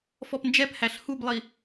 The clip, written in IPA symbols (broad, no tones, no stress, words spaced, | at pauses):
fɔpnd͡ʒɛphæɬ hublˠi